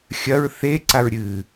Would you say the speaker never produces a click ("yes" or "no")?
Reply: no